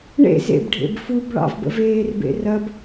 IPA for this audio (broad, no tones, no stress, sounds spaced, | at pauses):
ɳ ḛ z ḛ b ɖʱ ḛ b f u b ɭ ɑ̰ v b ə̰ v eː r b ḛ r ɐ b